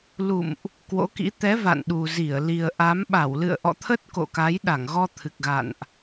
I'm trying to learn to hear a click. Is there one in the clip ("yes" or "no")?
no